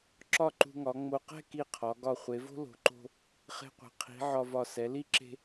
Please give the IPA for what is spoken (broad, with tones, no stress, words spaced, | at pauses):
ǁɒ˥˧ǃṳ˧ŋɒ˩˧ ŋ͡mo˧ qɛ̤˥˧ki˧˩ qʰɒ˩˧ ɡɒ˧˩χʷe˩˧vo̤˥ lo̤˩˧ǃo̤˧ | χe̤˧qʷɛ̤˩˧ qʰi̤˩˧ ʕɒ˧vɒ˧˩ sɛ˩˧li˥ ǁe̤˧